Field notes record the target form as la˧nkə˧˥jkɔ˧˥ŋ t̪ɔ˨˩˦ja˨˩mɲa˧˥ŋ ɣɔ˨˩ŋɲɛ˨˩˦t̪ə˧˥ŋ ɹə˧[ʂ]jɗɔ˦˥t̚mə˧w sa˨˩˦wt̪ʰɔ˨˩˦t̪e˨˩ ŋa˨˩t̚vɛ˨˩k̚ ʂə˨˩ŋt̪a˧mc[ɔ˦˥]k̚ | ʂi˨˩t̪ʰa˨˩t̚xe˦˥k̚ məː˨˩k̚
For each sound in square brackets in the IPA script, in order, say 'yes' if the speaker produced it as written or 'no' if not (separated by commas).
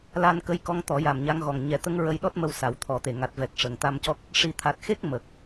no, yes